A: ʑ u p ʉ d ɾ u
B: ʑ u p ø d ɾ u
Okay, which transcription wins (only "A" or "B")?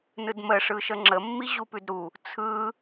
A